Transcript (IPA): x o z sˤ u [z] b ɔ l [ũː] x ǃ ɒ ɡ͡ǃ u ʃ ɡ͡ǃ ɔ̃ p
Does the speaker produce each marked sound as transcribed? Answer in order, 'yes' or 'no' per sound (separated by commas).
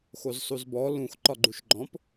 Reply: yes, no